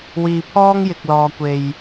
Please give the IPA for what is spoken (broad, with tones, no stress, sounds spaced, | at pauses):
w iː˧ pʰ ɔː˥ ŋ j ɪ˧ k̚ l ɔː˧ kʷ e˧ j